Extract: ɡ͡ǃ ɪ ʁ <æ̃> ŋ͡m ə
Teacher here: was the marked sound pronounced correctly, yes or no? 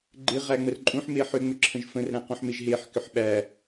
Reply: no